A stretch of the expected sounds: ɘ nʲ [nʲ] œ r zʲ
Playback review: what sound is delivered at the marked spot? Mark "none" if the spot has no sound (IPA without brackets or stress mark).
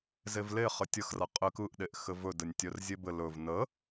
tʲ